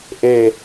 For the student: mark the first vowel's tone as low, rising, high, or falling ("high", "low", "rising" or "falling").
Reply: falling